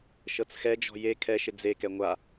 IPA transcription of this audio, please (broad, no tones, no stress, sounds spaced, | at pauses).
ʃ ɤ t͡s x ɛ d͡ʒ ɔ̤ j e kʰ ɛ ʃ ɪ d͡z e k ɛ ŋʷ a